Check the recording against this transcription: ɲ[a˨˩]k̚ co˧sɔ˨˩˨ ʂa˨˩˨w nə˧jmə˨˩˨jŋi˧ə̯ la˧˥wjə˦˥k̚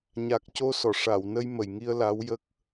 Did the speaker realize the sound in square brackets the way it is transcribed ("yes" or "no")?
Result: yes